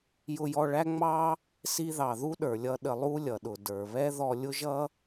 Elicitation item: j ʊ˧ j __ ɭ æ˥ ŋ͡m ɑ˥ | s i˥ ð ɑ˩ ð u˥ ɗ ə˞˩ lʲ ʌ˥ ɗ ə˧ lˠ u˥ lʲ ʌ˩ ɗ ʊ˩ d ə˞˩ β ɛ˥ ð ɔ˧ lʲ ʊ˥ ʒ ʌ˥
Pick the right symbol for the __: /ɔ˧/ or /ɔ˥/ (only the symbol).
ɔ˧